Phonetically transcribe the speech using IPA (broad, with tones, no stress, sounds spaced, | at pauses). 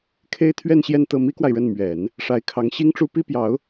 kʰ e˥ ɪ̯ t̪ʰ ɥ ɛ˥˧ n ɕ j ɛ˥˧ n t̪ ɤ˥˩ m i˥ k w a˨ ɪ̯ ɻ ə˥˩ n m ɥ ɛ˨˩˦ n | ʂ a˧˥ ɪ̯ kʰ ɑ˧˥ ŋ ɕ i˥ ŋ ʈ͡ʂ u˥ p i˥ p j ɑ˧˥ ʊ̯